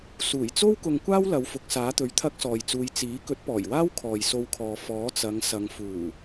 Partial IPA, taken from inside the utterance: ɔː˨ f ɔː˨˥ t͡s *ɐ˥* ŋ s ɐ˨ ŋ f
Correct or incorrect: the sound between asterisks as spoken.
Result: incorrect: ɐ˨˧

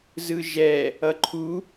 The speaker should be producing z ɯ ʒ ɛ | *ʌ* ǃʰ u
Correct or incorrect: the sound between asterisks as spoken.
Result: correct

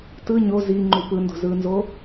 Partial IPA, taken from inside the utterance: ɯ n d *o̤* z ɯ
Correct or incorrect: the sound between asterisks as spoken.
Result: correct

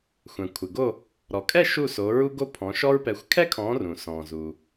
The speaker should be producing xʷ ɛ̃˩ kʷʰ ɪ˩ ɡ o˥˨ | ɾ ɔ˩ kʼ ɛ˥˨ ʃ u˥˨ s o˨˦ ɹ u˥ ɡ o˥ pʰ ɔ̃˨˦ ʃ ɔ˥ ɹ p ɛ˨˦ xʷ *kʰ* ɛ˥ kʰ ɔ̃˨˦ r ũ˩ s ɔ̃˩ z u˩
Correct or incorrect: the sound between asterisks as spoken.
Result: correct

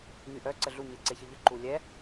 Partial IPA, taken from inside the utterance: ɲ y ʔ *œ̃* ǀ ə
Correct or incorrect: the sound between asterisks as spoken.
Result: incorrect: œ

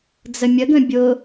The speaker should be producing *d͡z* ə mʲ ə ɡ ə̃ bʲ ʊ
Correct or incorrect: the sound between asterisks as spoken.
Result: correct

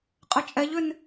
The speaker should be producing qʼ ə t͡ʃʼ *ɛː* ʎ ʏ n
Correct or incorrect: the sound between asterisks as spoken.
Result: incorrect: ɛ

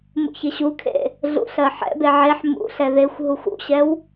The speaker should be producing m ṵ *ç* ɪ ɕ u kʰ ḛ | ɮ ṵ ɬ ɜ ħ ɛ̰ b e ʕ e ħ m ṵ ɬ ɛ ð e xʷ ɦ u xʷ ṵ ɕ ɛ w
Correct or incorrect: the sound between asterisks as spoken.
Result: correct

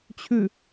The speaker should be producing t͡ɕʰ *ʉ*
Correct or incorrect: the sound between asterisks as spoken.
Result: correct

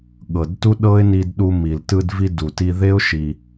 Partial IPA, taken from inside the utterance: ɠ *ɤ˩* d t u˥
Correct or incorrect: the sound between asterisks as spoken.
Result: correct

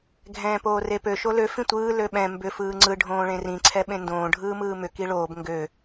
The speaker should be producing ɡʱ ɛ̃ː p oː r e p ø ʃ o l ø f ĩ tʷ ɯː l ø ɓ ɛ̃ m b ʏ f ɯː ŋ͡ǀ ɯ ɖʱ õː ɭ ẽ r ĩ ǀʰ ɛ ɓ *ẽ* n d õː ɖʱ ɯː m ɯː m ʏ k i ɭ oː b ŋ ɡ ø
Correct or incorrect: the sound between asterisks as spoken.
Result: correct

